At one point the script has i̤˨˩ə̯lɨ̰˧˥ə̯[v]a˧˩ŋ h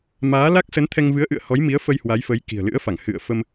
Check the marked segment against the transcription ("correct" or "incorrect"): incorrect